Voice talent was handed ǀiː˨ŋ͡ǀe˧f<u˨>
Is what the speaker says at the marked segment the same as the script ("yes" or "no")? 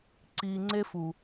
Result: yes